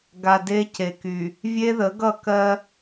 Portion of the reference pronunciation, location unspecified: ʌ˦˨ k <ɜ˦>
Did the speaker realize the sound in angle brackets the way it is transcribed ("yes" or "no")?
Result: yes